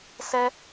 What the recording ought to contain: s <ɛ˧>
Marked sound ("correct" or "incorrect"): correct